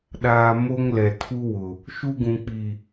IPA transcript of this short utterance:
ɗaː˨ mo˦ŋlɛ˨ tʰu˦ wʊ˨ | ʃu˦ɡũ˨ k͡pi˨

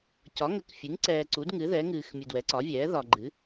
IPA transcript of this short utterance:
cɒ˩˥ŋə˩˥k fʲɨ˩˥ŋ ǀɛː˨ ǀu˩˥dŋɨ˩˥ ðɛ˩˥ŋɨː˨xmʲɨ˨ dwɛ˩˥ǀɒ˩˥vʲɛː˩˥ ðɒ˨ɡ͡ǃɨ˩˥

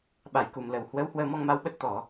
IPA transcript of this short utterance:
ɓa˧˩jku˨˩mlə˨˩w hwə˨˦w hwəː˧mɔ˧ŋma˧wɓə˦˥t̚ t̪ɔ˧˩˨

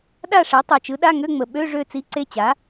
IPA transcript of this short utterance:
ɗa˥˧ʂe˩˥ tˤø˨˩t͡ʃɯ˩˥ɗa˧˥˧ŋø˧˥˧ ŋ͡mə˨˩ɓø˧˥˧ ʐø˥˧t͡si˧˥˧ǀe˥˧t͡ɕa˩˥

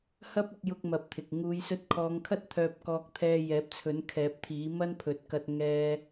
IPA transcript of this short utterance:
hɐ˥p̚ɪ˧k̚ jʊ˥k̚mɐ˧p̚t̪ʰɪ˨k̚ ŋuː˨˧jsɵ˧t̚kʰɔː˨˧ŋkʰɐ˥t̚ t̪ʰœː˧p̚kɔː˧k̚t̪ʰɛː˧ jɛː˨˥p̚t͡sʰɵ˨˥nkʰɛː˨˥p̚t̪ʰiː˨˥ mɐ˥n pʰɵ˨˥t̚kɐ˧t̚ ŋɛː˥

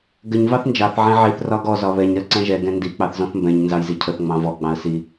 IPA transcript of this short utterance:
ɡəɲ vɑθnd͡ʒɑθ ʕɛ̃ʕiθ rɒɡɔ zɒβɛɲ ɾɜǀɛ̃ʒɛ ɡɛ̃ndi k͡pɑθzɔ̃θmbɛ̃ɲ nzɑjzicʰəθ ŋ͡mɑ̃vɔ ɡ͡bɑ̃ə̯si

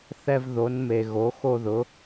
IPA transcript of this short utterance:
θɛ˧v ðo˩˧nme˩ ɣo˩˧ xo˧ðʊ˩˧

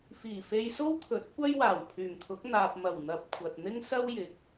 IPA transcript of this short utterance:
fiː˨˩ fe˧jso˥wt̪ʰɵ˨˥t̚ kʷɐ˥jwaː˨˩w pʰyː˨˩mt̪ʰʊ˨˥k̚ n̪aː˨p̚mɐ˨˩w n̪ɐ˨p̚ kʷʰɐ˨t̚n̪ɪ˥ŋ sɐ˥wjɪ˨k̚

